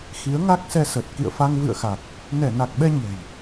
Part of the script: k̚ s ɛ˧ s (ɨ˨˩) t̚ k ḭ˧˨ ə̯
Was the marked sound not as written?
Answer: yes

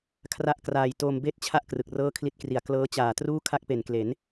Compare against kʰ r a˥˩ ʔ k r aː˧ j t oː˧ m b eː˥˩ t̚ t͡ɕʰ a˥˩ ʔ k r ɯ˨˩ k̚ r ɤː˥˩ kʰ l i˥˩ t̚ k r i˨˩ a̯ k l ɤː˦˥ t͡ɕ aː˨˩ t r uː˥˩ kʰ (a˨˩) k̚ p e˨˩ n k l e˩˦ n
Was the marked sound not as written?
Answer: yes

